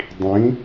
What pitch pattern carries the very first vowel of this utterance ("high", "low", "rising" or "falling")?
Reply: rising